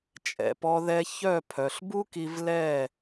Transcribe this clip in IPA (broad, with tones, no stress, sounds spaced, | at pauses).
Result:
t͡ʃʼ ɛ̰˨ p ɔ˧ ð ɛ˧ ç œ˦˨ pʰ œ˨ ɬ b u˦ k i˧ v l ɛ˦˨